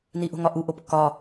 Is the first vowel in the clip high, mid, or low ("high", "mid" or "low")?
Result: high